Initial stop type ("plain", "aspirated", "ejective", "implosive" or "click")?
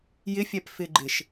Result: plain